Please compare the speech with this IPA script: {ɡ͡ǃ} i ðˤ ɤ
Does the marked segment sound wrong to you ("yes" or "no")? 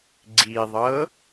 yes